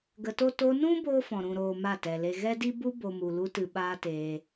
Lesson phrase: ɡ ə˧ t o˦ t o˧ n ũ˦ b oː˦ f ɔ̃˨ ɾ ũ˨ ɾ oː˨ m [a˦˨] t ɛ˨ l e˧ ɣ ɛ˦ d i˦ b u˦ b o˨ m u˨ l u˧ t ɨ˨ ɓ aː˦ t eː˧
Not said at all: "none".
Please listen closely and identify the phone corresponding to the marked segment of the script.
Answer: a˦˨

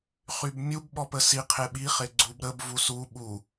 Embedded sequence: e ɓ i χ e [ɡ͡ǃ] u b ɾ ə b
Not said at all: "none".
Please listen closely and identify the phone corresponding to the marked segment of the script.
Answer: ɡ͡ǀ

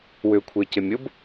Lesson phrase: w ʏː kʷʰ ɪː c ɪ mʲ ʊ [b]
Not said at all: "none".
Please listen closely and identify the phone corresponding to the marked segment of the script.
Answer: b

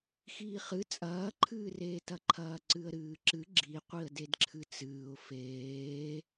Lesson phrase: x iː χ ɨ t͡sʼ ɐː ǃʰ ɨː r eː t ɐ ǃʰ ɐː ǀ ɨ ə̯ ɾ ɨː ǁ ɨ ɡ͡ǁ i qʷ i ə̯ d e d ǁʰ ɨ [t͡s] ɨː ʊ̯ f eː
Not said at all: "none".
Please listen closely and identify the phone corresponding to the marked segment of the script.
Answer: t͡s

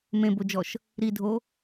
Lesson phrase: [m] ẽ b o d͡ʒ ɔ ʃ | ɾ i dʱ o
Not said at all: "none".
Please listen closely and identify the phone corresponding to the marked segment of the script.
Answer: m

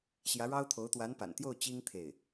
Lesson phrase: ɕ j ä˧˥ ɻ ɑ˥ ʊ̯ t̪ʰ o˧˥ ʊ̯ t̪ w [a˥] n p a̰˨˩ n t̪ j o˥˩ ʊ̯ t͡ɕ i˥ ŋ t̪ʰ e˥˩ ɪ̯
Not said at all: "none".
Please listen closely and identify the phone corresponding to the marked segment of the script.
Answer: a˧˥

